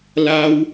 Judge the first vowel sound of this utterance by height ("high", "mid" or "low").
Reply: low